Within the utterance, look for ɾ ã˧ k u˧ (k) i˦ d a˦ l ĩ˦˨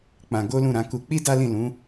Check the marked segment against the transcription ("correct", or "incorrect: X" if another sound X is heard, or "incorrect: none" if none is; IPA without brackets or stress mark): incorrect: k͡p